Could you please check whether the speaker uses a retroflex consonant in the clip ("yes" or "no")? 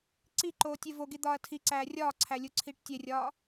yes